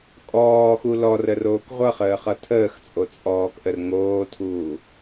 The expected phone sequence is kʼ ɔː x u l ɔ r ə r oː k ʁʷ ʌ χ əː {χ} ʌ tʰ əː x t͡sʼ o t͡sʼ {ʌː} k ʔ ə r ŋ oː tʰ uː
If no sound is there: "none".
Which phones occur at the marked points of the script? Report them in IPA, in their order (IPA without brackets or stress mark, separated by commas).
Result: χ, ɔː